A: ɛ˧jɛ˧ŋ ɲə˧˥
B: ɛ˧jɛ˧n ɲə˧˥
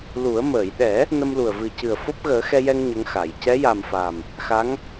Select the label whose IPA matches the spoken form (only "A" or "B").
A